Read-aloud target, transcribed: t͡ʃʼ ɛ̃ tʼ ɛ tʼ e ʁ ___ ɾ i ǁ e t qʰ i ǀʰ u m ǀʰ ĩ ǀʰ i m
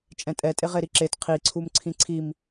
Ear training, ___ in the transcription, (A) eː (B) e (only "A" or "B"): B